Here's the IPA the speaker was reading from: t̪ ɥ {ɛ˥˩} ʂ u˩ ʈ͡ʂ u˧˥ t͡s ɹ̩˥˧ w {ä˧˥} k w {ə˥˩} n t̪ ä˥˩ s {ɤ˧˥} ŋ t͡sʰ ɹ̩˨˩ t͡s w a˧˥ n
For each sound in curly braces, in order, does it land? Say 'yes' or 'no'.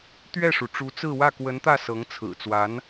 yes, no, no, yes

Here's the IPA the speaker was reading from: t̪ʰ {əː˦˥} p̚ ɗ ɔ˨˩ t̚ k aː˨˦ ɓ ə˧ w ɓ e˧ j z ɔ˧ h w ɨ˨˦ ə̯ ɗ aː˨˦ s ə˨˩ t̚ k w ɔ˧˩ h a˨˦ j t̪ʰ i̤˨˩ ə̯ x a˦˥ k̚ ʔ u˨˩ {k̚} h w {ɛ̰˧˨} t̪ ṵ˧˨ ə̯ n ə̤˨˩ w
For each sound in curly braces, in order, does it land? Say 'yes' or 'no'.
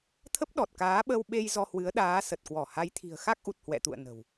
no, no, yes

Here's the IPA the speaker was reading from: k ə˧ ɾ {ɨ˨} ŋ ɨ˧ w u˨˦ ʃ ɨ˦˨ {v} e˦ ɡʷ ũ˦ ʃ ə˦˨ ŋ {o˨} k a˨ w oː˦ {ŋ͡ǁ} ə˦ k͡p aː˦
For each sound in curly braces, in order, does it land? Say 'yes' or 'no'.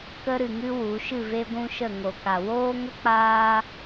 yes, yes, yes, no

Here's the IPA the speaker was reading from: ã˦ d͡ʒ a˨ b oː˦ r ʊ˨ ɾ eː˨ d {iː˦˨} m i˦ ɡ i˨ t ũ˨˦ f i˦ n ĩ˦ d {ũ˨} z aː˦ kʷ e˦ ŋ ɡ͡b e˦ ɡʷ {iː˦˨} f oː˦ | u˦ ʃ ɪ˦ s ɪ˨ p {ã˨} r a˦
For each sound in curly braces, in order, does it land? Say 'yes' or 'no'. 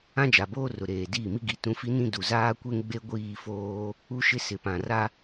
yes, no, yes, yes

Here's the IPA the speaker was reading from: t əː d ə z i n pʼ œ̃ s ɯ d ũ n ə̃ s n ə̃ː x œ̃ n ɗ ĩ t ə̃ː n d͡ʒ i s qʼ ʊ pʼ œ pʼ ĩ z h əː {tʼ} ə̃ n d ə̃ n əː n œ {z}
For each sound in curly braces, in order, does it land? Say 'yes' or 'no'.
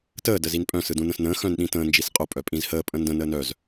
no, yes

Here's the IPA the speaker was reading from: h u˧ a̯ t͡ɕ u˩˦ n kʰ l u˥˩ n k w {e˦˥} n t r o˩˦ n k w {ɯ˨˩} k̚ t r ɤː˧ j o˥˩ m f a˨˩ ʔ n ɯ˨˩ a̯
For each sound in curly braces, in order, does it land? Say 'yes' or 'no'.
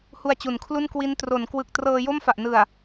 no, yes

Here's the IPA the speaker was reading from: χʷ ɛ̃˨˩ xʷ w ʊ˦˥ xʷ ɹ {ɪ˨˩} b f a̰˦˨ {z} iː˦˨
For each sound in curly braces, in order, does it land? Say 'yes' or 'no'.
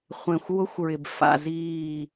yes, yes

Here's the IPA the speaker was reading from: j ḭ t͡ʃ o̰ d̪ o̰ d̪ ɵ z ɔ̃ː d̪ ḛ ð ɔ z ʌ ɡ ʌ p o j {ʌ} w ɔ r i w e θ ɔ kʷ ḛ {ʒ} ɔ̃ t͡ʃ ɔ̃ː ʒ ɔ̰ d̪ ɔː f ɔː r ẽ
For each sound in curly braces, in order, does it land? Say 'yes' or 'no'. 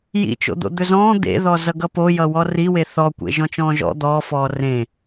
yes, yes

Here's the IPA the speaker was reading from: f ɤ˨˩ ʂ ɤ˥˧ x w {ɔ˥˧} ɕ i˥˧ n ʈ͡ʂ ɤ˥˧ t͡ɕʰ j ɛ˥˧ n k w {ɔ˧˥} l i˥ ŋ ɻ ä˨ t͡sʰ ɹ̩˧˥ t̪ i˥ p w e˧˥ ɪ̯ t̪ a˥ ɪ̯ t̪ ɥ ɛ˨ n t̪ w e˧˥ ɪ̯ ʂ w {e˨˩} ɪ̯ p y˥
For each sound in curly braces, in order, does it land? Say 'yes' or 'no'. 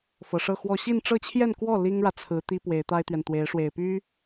yes, no, yes

